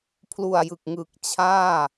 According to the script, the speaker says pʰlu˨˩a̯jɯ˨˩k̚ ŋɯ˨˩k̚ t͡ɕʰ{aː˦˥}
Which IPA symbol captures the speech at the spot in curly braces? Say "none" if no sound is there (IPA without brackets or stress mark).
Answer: aː˥˩